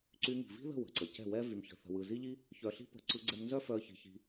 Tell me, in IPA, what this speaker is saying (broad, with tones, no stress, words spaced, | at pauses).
ǀy˧ŋi̤˨vi̤˦ðə̤˦˨ wə̤˨ǀə˨cɛ̤˦˨ wɛ˦ vy˧mçə̤˧θə̤˧wɯ˧ zi˦ʎi˦ | çœ˧ɬi̤˦ pə̤˧ ǀɯ˧ ɡ͡ǀɛ˧mnzœ˦fœ˧ə̯ çi̤˧çi̤˧